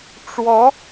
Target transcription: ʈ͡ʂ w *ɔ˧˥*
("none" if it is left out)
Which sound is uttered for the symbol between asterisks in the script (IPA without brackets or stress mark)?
ɔ˧˥